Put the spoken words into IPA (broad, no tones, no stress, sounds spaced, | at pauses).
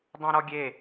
dˤ õ ɾ ɔ ɡʲ e